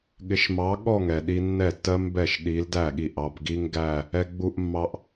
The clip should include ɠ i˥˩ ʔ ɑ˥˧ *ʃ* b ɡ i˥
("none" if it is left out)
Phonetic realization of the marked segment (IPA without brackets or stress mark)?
none